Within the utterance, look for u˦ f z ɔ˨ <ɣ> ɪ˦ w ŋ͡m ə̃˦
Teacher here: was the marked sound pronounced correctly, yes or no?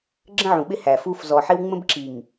no